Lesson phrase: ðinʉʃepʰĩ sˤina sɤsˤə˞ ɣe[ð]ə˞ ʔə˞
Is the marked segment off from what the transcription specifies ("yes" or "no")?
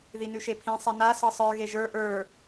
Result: yes